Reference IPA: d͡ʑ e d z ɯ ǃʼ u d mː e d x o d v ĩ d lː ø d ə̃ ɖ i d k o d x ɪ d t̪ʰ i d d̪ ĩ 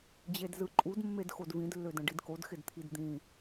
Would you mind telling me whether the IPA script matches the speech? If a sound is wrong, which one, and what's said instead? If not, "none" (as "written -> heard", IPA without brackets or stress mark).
none